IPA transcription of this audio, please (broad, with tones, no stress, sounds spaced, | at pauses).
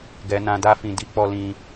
ɡ ɛ˧ n ã˧ d a˦ f ĩ˧ d i˦ k͡p ɔ˦ l ĩ˦